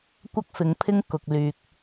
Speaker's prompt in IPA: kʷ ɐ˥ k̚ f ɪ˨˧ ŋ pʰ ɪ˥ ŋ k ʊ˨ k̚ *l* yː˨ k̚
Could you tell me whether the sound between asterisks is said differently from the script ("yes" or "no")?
no